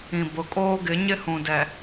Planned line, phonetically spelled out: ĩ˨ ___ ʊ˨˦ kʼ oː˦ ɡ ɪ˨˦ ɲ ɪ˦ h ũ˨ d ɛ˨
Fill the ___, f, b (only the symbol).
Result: b